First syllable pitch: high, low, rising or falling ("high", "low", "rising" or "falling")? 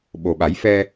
low